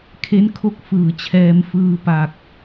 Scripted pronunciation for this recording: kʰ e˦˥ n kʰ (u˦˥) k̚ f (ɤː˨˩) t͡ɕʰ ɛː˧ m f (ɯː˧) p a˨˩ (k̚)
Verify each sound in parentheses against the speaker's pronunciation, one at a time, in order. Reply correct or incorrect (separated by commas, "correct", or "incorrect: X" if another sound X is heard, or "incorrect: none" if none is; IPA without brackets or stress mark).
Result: incorrect: o˦˥, incorrect: ɯː˨˩, correct, correct